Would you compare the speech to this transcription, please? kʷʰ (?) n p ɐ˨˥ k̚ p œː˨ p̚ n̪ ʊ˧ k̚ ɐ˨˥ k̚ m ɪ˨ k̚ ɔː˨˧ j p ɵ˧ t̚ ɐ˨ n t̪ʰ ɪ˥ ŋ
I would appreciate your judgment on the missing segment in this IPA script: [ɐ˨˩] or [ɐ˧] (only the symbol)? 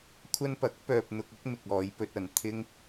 ɐ˧